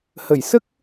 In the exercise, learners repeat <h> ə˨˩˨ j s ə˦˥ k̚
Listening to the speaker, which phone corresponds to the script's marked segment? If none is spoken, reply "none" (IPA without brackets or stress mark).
h